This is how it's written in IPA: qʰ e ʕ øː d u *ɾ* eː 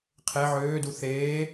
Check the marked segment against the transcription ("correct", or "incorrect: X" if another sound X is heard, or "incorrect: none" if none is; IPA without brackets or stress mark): incorrect: θ